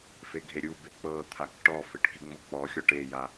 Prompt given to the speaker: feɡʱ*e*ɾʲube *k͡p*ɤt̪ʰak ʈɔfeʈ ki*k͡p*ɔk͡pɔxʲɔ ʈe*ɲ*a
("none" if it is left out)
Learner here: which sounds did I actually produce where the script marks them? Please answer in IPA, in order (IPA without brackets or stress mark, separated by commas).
e, k͡p, ŋ͡m, j